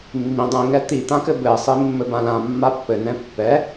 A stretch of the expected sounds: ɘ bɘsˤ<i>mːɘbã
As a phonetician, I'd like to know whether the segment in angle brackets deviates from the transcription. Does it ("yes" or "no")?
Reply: no